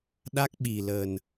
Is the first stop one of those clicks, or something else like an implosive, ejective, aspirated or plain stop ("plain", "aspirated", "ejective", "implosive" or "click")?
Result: implosive